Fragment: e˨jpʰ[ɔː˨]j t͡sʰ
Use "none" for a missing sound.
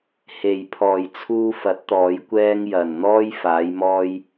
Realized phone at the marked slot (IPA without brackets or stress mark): ɔː˨